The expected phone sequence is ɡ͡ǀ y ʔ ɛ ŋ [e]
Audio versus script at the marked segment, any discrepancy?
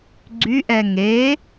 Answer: no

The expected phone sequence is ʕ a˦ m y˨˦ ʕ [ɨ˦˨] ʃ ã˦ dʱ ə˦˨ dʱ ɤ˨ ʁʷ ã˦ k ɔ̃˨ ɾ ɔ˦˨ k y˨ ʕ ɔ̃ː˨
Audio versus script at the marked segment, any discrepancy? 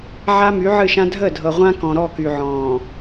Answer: no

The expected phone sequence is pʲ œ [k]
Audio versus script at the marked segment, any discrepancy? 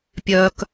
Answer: no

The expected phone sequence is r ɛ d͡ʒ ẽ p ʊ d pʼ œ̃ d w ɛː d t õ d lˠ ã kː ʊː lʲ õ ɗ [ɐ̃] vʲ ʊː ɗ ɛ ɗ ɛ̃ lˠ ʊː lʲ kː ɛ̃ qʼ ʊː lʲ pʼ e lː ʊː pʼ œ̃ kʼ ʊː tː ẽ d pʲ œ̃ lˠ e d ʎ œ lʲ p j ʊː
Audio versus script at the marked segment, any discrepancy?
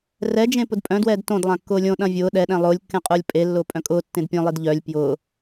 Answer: no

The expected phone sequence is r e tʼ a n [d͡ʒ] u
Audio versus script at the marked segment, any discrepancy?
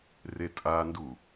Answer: yes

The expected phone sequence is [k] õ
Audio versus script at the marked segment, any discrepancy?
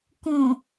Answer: no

